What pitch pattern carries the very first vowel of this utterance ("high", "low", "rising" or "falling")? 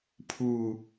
low